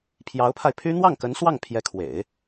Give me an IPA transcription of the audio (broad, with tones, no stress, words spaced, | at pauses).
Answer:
pʰjɑ˧˥ʊ̯pʰa˧ɪ̯pʰy˥ n̪wɑ˥˩ŋkə˧˥nswɑ˥˩ŋ pʰjɛ˧˥kʰwḛ˨˩˦ɪ̯